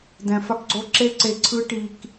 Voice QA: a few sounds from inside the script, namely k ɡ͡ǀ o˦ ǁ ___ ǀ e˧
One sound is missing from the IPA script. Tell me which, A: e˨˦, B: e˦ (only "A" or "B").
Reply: B